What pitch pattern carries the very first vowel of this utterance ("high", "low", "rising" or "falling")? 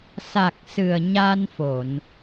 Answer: low